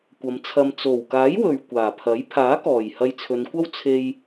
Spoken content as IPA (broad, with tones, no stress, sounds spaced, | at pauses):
kʷ ɐ˨˧ m t͡sʰ ɐ˧ m t͡s o˨˩ w k aː˨˥ j w ɵ˨ ɥ kʷ aː˨˩ pʰ ɐ˨˥ j pʰ aː˨˥ k ɔː˨˩ j h ɐ˧ j t͡sʰ ɵ˨˧ n kʷ ɐ˥ w t͡sʰ e˧ j